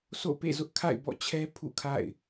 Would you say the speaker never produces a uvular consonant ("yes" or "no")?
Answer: yes